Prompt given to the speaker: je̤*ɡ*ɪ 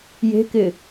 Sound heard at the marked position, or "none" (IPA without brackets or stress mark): k